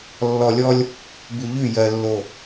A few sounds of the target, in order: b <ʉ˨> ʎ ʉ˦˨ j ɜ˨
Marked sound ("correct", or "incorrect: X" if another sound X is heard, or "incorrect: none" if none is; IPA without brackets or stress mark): correct